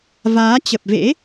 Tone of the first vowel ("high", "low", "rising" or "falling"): rising